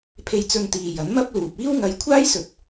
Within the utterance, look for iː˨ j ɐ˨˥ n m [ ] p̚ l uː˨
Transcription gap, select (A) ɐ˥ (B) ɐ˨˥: A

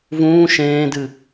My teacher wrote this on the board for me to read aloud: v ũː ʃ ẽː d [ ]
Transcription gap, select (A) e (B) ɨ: B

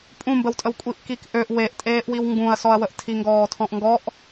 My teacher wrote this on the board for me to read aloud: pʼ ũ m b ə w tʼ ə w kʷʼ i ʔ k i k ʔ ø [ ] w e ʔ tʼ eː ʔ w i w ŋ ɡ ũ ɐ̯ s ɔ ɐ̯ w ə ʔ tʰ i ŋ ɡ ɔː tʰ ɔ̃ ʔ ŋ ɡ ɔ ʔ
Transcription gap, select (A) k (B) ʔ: B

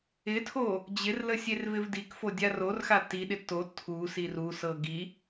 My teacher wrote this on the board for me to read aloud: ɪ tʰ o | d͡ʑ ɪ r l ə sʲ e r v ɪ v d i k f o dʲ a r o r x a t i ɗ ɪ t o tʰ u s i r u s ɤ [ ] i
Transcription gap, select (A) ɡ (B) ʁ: A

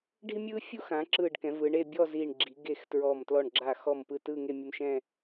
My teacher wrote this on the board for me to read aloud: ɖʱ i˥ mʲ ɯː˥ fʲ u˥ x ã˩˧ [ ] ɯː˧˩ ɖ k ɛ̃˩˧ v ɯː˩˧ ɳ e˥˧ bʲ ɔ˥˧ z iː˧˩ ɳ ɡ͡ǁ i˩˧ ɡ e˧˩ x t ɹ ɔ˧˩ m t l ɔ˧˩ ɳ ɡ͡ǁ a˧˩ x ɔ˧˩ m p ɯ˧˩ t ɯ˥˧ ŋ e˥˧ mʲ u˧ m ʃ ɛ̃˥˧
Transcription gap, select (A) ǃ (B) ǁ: B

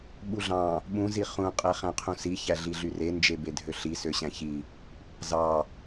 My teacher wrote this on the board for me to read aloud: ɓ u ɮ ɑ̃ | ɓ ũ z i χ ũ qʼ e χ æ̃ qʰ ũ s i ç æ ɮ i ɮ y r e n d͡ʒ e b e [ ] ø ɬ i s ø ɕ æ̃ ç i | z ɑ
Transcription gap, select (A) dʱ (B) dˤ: A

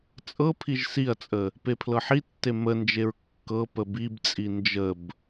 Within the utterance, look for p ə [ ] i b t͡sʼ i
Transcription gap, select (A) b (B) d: A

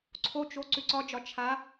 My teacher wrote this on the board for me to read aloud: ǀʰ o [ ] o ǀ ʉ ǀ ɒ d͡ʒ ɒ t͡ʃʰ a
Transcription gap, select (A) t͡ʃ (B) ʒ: A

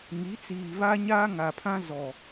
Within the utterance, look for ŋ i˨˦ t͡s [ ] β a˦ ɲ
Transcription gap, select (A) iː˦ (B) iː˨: B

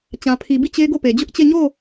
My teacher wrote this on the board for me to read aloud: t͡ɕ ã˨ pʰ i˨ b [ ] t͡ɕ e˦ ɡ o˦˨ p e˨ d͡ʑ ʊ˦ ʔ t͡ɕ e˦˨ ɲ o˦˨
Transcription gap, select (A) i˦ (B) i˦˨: B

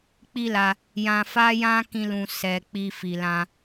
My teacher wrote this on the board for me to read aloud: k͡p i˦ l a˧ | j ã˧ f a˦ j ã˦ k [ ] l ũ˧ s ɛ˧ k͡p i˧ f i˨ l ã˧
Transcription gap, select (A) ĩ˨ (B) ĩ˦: B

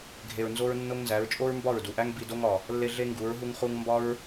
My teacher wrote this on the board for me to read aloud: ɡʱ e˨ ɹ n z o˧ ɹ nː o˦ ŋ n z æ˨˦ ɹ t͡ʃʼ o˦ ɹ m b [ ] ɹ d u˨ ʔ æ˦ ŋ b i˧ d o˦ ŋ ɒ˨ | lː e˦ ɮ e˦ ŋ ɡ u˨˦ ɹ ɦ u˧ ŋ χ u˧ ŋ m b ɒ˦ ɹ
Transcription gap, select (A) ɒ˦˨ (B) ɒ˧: A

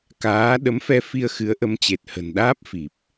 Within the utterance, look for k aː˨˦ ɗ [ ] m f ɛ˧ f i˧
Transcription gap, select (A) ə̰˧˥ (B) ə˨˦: B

